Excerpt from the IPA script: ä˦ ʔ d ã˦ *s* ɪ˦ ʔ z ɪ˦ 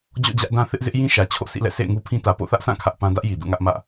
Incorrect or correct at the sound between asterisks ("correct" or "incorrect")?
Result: incorrect